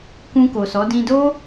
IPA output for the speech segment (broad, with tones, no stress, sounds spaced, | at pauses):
k ũ˧ k o˨ s ɔ˨˦ d ĩ˧ d o˦